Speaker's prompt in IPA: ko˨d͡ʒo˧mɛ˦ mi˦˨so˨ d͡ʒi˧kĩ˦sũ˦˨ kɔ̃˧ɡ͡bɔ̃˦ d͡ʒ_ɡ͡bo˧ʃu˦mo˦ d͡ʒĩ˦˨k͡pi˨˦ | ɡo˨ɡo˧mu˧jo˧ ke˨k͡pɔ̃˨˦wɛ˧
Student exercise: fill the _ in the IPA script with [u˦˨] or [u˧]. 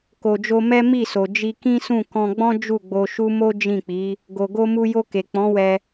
u˦˨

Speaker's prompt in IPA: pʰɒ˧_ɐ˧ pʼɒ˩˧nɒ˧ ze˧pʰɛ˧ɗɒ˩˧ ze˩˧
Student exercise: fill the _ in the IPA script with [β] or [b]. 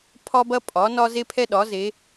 b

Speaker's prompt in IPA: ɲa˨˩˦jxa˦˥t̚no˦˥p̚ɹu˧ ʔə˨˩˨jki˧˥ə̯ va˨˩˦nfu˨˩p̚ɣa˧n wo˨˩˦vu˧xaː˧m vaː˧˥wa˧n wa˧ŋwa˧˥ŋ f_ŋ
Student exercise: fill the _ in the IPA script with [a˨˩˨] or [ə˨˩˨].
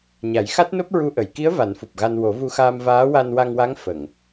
ə˨˩˨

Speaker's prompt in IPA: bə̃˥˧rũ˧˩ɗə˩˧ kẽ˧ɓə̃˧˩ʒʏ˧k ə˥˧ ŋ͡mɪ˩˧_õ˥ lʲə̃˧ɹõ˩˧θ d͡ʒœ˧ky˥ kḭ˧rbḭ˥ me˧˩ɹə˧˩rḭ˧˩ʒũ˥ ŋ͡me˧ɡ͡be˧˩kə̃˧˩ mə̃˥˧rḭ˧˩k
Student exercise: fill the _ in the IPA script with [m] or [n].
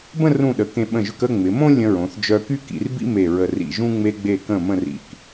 m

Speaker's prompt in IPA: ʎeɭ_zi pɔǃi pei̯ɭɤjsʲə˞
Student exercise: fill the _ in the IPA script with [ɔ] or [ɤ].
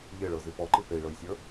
ɤ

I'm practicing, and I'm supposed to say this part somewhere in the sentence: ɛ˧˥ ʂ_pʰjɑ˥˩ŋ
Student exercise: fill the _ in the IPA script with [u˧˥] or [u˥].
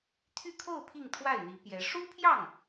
u˥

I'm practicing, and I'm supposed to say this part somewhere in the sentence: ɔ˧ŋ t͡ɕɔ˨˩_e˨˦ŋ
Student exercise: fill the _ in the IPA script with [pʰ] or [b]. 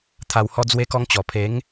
pʰ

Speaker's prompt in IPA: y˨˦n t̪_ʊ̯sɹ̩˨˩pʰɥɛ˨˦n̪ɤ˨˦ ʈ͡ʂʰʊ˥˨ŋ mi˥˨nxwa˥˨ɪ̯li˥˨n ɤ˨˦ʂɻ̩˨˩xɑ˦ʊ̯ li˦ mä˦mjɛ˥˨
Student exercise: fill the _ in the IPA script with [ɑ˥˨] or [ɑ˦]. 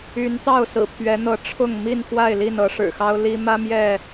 ɑ˥˨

